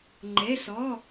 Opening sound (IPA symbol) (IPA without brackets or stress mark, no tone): ŋ͡ǃ